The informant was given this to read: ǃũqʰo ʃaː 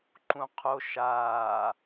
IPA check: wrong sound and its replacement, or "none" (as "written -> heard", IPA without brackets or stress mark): none